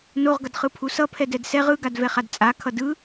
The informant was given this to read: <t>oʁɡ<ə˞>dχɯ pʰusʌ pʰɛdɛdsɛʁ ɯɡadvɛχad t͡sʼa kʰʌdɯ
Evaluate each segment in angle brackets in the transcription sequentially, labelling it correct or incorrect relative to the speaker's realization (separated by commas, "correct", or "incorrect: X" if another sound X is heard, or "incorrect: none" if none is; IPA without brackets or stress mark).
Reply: incorrect: n, incorrect: ʌ